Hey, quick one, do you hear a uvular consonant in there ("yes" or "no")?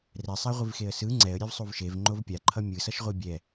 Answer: yes